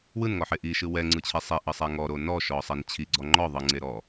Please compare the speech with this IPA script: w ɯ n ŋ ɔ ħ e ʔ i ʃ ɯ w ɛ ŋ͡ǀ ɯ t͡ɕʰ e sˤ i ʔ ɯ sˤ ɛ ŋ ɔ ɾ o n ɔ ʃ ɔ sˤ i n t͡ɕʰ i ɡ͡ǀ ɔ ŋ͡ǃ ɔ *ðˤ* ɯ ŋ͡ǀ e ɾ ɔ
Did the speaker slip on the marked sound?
no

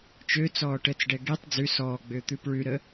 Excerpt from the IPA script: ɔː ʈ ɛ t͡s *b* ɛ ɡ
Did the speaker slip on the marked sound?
yes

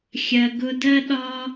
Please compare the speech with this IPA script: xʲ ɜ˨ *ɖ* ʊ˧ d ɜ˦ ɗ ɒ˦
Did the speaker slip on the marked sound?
yes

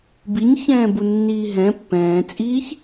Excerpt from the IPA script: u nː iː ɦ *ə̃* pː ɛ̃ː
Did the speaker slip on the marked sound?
yes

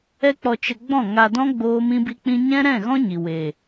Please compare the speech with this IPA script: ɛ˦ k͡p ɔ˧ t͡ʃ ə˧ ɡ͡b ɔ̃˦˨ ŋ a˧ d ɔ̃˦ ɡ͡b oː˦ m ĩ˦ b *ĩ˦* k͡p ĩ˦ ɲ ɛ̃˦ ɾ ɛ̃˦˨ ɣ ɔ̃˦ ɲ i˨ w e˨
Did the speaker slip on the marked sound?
yes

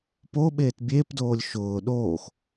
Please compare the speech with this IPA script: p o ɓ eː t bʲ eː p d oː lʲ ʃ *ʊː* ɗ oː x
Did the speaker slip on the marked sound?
no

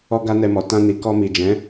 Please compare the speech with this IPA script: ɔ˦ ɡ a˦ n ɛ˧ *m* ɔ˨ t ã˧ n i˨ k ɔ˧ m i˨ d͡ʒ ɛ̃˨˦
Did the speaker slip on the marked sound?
no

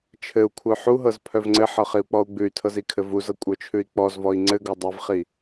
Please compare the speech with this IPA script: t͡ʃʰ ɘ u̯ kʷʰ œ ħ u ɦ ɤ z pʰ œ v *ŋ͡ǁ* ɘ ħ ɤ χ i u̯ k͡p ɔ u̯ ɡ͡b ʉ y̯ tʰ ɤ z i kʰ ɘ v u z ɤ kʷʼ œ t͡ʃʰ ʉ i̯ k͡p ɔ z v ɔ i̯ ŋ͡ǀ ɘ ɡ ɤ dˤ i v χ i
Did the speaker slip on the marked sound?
yes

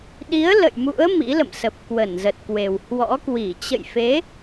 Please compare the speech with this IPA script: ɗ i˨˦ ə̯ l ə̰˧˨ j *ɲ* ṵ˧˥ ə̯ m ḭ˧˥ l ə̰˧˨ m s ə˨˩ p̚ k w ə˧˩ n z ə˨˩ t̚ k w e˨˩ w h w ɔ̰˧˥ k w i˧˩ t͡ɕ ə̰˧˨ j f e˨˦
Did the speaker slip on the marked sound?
yes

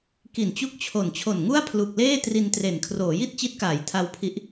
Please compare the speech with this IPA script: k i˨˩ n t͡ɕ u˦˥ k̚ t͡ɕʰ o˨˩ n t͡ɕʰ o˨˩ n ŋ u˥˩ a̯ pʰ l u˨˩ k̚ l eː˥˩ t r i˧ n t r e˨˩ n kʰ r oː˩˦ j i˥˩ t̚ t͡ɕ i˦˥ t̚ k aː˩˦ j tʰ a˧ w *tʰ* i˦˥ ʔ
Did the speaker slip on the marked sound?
yes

